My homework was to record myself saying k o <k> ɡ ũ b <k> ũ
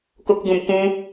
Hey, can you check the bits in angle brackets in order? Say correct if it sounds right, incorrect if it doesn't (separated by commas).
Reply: correct, correct